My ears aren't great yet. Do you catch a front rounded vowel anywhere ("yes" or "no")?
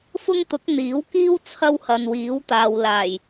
no